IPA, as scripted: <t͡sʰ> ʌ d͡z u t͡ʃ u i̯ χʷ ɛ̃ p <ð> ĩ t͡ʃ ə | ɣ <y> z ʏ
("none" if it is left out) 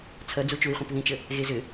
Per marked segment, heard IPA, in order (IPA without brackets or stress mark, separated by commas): t͡sʰ, ð, e